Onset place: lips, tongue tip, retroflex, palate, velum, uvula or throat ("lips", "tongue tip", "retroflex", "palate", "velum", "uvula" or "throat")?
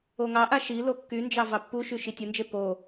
velum